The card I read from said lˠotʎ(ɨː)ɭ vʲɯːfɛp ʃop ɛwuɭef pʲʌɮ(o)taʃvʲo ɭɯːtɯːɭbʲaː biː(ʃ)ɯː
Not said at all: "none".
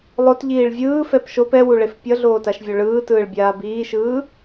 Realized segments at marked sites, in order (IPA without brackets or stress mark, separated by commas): iː, oː, ʃ